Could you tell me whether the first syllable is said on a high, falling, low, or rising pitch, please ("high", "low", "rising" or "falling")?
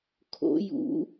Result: rising